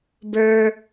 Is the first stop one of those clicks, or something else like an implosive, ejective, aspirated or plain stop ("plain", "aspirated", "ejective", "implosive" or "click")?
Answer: plain